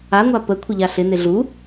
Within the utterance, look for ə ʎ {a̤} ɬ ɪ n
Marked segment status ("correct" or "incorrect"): incorrect